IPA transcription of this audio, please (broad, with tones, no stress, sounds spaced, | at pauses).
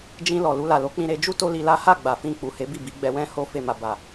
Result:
d͡ʒ ĩ˧ l ɔ˨ l u˧ l a˨ l o˨˦ k͡p ĩ˧ ɾ e˧ d͡ʒ u˦ t o˦ l i˧ l a˦ h a˦˨ ɡ͡b a˨ f ĩ˧ k͡p u˨ h e˨˦ b i˦˨ b i˨˦ ɡ͡b ɛ˧ w ɛ̃˦ h o˦ f e˦˨ m a˧ b a˨